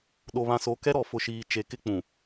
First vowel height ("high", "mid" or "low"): mid